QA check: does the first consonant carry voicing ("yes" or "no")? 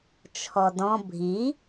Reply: no